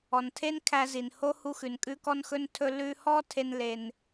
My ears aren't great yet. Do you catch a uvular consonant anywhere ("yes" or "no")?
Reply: no